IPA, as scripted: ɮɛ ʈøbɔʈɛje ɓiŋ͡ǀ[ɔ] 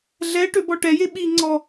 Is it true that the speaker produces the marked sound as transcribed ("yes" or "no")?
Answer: yes